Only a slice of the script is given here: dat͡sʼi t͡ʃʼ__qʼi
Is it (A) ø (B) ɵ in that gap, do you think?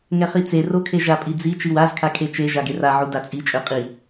A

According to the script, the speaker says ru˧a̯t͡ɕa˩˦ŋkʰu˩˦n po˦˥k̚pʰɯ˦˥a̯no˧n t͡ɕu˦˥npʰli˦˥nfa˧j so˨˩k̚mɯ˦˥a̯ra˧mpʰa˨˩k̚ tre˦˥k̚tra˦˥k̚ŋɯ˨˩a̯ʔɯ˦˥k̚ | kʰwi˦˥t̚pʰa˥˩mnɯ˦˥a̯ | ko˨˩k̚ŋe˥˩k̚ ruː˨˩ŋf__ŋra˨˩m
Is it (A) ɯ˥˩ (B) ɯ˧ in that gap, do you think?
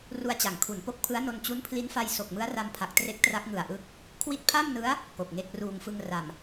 B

